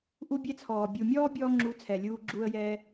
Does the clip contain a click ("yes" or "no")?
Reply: yes